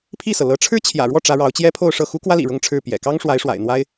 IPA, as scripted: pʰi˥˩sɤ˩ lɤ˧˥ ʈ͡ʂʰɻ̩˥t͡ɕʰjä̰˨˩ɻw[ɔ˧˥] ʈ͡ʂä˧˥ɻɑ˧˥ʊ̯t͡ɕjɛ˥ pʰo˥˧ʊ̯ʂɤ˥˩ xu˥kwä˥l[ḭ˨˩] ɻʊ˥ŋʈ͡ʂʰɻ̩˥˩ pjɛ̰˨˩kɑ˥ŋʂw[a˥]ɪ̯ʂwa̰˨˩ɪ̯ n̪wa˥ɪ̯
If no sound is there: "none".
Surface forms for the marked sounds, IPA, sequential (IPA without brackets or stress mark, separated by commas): ɔ˥˩, ḭ˨˩, a˧˥